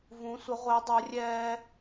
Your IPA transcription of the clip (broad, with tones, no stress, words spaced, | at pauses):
vũ˨˥sʷə˨˥ ʁʷe˨˥dˤo˨˥rʲɛː˦